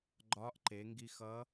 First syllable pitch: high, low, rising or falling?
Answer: rising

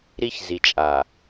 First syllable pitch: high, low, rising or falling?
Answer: high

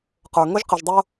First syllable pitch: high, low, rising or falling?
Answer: low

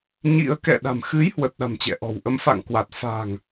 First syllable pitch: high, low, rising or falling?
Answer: rising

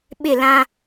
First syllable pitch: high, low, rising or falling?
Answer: falling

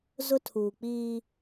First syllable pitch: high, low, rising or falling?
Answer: high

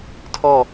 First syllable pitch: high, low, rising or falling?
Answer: falling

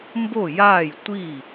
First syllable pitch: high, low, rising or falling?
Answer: falling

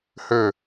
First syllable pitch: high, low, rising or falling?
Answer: falling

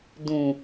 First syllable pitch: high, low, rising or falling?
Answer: low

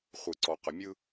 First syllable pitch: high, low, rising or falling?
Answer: low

